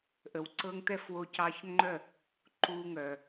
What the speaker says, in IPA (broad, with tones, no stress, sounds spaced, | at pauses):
ʔ ə˩ w ǀ ɤ˧ ŋ t̪ ɛ˥˩ f w o˧ c ɑ˧ ç ŋ͡ǃ œ˥˩ | ǃ u˧ ŋ œ˩